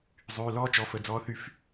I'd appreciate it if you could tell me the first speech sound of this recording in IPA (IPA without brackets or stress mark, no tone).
zˤ